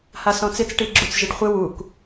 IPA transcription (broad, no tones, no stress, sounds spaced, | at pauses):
h a s ɔ̃ t͡s ɪ t͡s ʈ i ɡ͡ǁ u t͡s ʒ ɪ ɖ χʷ ɪ w u k